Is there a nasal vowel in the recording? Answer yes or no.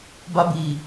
no